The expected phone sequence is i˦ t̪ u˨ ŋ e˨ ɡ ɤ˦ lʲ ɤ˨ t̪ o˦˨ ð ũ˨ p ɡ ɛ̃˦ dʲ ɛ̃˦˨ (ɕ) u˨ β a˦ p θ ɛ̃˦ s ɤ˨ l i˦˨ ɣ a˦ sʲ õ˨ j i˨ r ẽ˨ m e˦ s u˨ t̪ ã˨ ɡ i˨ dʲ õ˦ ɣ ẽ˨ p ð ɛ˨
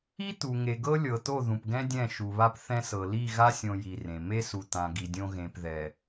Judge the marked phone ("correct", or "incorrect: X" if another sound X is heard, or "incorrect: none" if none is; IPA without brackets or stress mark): incorrect: ʃ